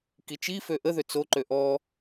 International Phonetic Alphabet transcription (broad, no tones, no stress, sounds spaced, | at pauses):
k i t͡ʃ i f ø ʔ ə ð ø t͡s o ǃ ø ʔ ɔ